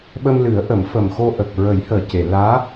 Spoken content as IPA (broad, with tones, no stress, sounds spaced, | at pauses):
ɓ ə˧ m l ɨ˨˩˦ ə̯ ʔ ə˨˩˦ m f ə˨˩ m x o˧ ʔ ə˨˩ k̚ ɹ ə˨˩˦ j h əː˨˩ c e˨˩˨ l aː˧˥